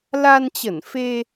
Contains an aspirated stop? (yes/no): no